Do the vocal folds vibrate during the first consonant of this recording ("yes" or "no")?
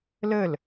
yes